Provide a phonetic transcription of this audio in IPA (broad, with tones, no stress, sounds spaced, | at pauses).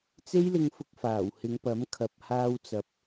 t͡s e˥ j l ɪ˧ ŋ f ʊ˧ k̚ f aː˨˩ w h ɪ˨˧ ŋ p ɐ˨˥ m kʰ ɐ˨ p̚ h aː˧ w t͡s ɐ˨ p̚